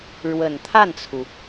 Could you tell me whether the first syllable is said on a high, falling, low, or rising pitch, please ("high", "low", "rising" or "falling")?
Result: low